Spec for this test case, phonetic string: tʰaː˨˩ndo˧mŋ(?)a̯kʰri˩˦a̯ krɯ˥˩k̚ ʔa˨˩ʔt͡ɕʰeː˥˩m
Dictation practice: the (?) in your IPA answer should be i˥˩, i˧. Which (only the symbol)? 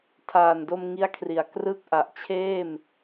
i˧